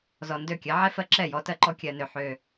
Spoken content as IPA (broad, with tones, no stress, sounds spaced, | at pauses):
z ɔ˨ n d ø˦˨ kʲ ɜ˨˦ ʕ ɛ˦ f ɜ˦ ǁ ɛ˦˨ j ɔ˦ t ɜ˦ ǃ ɔ˦ kʲ ɜ˦ n ø˦ ħ ø˦